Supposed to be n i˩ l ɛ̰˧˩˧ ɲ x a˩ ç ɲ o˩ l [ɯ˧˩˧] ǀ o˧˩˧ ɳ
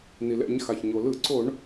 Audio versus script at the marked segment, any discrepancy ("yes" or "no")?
no